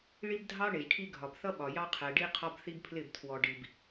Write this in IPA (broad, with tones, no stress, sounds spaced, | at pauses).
ɭ i˦ b dʱ ɑ˦ ɳ e˨ ʒ ʈʰ i˦ ɡʱ ɒ˨ b θ ʌ˦ ɓ ɒ˨ j ɑ˦ qʰ ɛ˨ ɖ i˦ qʰ ɒ˦ b θ i˦ b pʰ l ɪ˦˨ b tʰ w ɔ˨ ɖ i˨ b